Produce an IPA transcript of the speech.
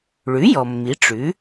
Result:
ɭ ʉ˩˥ j ɔ˩ mː i˩˧ ʈ͡ʂ ʉ˩˥

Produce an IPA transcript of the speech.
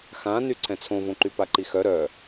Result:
x ã n y ǀʰ ɛ̃ t͡sʰ õ v õ ǃ y p a ǃ i x œ ɾ œ

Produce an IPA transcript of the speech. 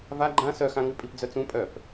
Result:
v a ɡ͡ǃ ã s œ x ã ŋ ʉ pʼ i p d͡z œ t͡s ũ pʼ œ p

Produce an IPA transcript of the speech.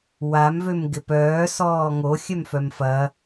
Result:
w a m v ø m ɡ ɪ p œː s ɔː ŋ o xʲ œ m f œ m f ɐ

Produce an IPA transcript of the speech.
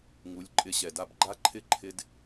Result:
ŋ u˨˦ lʲ ǃʼ ɪ˧ ɕ ɛ˨ d a˦ b ɡ͡ǃ a˦ ǃʰ ɪ˦ ǃʰ ɪ˧ d

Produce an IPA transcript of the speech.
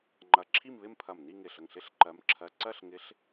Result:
ŋ͡ǃ ɐ˧˩ ǁʰ i˥˧ m β ɪ˥˧ m pʰ ɐ˧˩ m n i˥˧ ŋ ɪ˧˩ ɬ ə˧˩ ŋ ɬ ɪ˥˧ ɬ ǃ ɜ˧˥ m ǁʰ ɜ˧˥˧ ǀ ɜ˥˧ ɬ ŋ ɪ˧˥ ɬ

